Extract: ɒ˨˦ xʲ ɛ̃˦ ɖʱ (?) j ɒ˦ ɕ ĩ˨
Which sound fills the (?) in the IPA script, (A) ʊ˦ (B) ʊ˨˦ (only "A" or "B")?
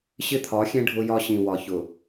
A